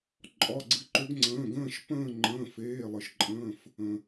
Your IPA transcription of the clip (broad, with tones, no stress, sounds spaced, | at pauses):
ǃʼ ɒ˩˧˩ ɡ͡ǀ ɨ˨˦ ǃ ø˨˦ ɡ ŋ͡ǀ ə̃ː˩˧˩ ɡ ə̃ː˦˨ ʃ p ə̃ː˦˨ ŋ͡ǃ ə̃ː˩˧˩ f eː˩˧˩ lˠ ɨ˩ ʃ ǃʼ ə̃ː˩˧˩ f | ə̃˩